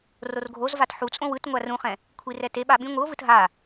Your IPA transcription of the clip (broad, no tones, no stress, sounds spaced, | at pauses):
r o r ɡʱ o z v a t ħ u t͡sʼ õ w ɯ t ŋʷ a r ũ χ ɛ̃ | kʷʰ i r ɛ t e ɓ a ɓ ĩ ŋʷ ɯ o̯ v ɯ t ɦ a